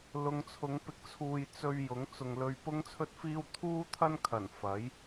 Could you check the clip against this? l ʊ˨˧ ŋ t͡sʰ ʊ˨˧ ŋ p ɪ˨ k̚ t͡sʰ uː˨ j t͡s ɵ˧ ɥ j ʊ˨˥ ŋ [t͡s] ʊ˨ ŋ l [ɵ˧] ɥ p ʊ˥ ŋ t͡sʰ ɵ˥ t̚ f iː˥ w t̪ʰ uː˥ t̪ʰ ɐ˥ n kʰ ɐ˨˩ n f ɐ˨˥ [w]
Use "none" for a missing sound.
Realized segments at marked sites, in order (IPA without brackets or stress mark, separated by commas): t͡s, ɵ˧, j